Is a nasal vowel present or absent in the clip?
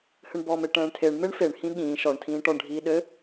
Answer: present